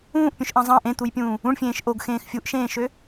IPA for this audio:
ũː ʔ pʲ ũ ʃ ʔ ɑ̃ zˤ ɑ̃ ʔ ẽ t̪ u j pʲ ũː | ũ ɳ fʲ ẽː ʃ ʔ o ɡ x ẽː x fʲ u ʔ ʃ ẽː ʃ ø

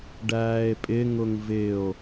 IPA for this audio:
ɖ æː e̯ pʼ ɪ ŋ ʊ ŋ v ɪ o̯

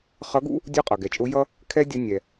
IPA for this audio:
χ ʌ˧˥ ɡ ṵ˥ | dʲ ʊː˥ qʼ ʌ˩ ɡ ɛ˩˧ t͡ʃʼ ʊː˧˥ j ʌ˥ | kʰ ɛ˥ dʲ ə˧ nʲ ɛ˩

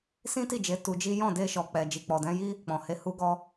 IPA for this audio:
s ĩ˦ t i˦˨ d͡ʒ e˨˦ t u˧ d͡ʒ i˦ j ɔ̃˦˨ d e˧ ʃ ɔ˨ k͡p ɛ˨ d͡ʒ i˨ k͡p ɔ˨ d ɛ̃˧ j i˦ | k͡p ɔ̃˨ h e˧ h u˧ ɡ ɔ˧

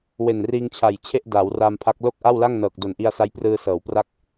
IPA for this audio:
w e˨˩ n r iː˧ ŋ t͡ɕʰ a˨˩ j t͡ɕʰ e˥˩ ʔ d aː˩˦ w r aː˧ m pʰ a˦˥ k̚ l o˥˩ k̚ ʔ a˥˩ w l a˥˩ ŋ n ɤː˨˩ k̚ d o˨˩ n ʔ i˧ a̯ s a˦˥ j p r ɯː˧ s ɤː˩˦ w p r a˥˩ k̚

